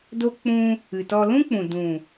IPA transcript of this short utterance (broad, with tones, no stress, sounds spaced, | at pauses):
d o˦ k͡p ũ˧ | ɨ˨ t ɔ˧ l ũ˦ k͡p ũ˨ d ũ˨